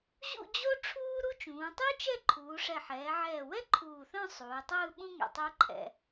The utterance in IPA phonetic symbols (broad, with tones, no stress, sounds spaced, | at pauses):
ʑ ṵ˥˧ d͡ʑ o˥ ʈ͡ʂʰ uː˥ ɾ u˥ t͡ʃ ũː˩˧ tˤ u˥ t͡ʃ ɛ˥˧ ǃʰ uː˩˧ ʂ ɛ˧˩ ħ ɛː˩˧ ʕ ɛː˧˩ w ɛ˥ ǃʰ uː˧˩ θ œ̃˥˧ sˤ uː˩˧ tˤ ɯː˥˧ ɓ ũ˥ ŋ ɛ̰˧˩ tˤ u˥ ǃʰ ɛ̰˧